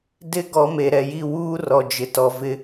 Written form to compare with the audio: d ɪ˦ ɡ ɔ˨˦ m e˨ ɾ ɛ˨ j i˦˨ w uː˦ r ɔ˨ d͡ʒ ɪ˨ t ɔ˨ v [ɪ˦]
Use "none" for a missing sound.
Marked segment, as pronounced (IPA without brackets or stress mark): ɪ˦